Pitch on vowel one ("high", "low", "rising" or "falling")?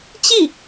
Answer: falling